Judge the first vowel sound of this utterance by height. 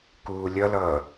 high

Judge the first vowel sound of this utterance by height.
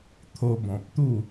mid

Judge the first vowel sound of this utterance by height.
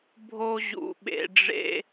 mid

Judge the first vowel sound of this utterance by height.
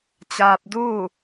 low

